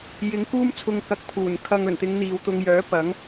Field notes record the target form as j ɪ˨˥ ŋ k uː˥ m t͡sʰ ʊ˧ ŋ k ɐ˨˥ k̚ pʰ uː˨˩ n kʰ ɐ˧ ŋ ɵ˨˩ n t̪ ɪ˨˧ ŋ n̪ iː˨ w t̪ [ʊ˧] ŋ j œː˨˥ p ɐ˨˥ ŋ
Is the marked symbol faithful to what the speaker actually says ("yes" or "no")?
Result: yes